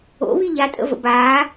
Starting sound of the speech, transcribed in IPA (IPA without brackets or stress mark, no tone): o̰